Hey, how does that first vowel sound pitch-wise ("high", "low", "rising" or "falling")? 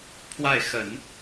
falling